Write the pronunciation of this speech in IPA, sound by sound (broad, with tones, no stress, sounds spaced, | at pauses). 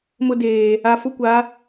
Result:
m ʊ˦ d eː˨ | a˨ f ʊ˦ kʷ a˨˦